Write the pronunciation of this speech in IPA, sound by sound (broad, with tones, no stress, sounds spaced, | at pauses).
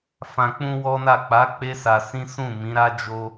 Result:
f ã˧ k͡p ũ˦ w ɔ˦ n a˦˨ k͡p a˨˦ k͡p e˦ s a˧ s ĩ˦ s ũ˦˨ m ĩ˨˦ ɾ a˦ d͡ʒ o˦